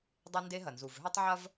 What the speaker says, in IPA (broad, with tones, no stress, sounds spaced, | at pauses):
dˤ e˦ n d e˦ ɦ ɐ˨ n z u˨ v ɦ ʏ˦ tˤ ʕ ɐ˦ v